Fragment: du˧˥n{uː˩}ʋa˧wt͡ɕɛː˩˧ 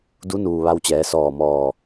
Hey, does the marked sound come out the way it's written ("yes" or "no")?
yes